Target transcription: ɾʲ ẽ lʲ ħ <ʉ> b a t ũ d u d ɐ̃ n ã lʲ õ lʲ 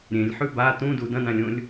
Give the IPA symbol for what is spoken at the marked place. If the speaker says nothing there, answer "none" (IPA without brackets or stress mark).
ʉ